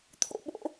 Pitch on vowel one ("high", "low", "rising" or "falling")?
high